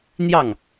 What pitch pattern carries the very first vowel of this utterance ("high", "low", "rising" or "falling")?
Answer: falling